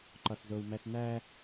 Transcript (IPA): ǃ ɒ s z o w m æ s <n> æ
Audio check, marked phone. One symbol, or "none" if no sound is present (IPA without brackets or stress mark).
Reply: n